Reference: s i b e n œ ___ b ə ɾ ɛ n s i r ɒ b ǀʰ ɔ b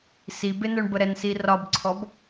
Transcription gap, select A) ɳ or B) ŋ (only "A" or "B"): A